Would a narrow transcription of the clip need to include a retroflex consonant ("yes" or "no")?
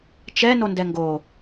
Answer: no